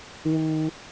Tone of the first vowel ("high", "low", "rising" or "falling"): high